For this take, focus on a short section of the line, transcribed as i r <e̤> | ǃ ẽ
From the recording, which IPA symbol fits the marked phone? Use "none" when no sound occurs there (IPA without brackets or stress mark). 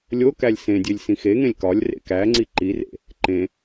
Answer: ḛ